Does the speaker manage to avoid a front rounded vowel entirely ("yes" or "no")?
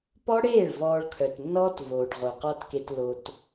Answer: no